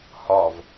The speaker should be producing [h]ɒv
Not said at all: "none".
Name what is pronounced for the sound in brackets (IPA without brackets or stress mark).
h